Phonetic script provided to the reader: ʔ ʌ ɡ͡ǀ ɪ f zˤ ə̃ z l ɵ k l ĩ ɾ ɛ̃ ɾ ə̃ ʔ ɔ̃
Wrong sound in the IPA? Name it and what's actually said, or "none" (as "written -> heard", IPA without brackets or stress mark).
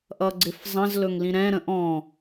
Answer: k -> ŋ